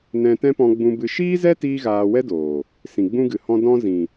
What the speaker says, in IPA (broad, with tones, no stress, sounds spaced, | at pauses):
n ɛ̃˧ t ɛ̃˦ p ɔ̃˧ ɡ͡b ũ˧ b ɨ˧ ʃ iː˦ z ɛ˦ t iː˦ ɣ aː˧ w ɛ˦ d oː˨ | s ĩ˨ ɡ͡b ũ˦ ɡ ɨ˨ h ɔ̃˧ d ɔ̃˦ z ĩ˨